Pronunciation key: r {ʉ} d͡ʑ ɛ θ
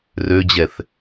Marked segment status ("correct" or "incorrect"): incorrect